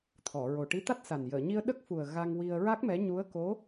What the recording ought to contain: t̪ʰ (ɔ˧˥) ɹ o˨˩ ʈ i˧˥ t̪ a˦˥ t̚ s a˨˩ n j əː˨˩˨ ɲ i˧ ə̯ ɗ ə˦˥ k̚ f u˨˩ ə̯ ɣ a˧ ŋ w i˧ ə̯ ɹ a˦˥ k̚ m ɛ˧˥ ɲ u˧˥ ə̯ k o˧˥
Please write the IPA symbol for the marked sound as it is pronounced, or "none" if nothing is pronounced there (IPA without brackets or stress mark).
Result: ɔ˨˩˨